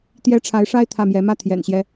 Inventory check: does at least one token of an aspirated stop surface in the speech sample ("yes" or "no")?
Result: yes